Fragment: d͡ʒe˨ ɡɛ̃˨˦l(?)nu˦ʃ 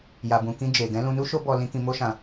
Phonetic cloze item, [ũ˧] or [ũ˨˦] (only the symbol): ũ˧